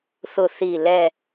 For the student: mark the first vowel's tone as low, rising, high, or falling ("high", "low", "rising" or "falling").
low